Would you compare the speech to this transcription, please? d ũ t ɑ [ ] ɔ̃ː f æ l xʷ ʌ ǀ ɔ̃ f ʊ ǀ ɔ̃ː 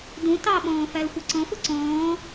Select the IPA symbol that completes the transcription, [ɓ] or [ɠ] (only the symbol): ɓ